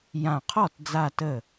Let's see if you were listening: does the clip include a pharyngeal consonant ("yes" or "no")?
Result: no